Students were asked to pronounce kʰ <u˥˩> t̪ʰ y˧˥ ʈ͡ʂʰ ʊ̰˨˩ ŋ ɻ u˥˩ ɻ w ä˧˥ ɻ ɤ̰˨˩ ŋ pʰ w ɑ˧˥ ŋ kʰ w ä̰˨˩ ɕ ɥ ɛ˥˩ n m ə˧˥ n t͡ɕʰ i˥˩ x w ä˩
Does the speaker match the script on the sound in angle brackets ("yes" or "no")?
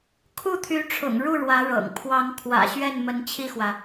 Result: yes